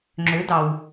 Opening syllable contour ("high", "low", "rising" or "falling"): rising